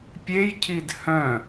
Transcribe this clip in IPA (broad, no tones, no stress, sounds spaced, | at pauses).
pʲ e j cʰ i d h œ̃